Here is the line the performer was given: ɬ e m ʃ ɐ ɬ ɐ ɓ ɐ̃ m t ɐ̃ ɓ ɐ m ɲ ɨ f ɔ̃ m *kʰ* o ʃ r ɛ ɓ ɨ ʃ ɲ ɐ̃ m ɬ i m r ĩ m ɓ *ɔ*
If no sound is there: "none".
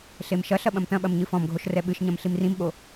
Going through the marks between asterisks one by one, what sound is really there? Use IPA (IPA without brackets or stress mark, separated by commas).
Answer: ɡʱ, o